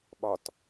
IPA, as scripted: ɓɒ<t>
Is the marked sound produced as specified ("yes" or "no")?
yes